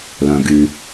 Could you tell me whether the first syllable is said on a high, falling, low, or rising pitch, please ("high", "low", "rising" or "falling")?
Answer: low